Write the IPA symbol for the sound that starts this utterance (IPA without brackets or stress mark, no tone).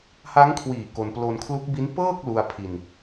h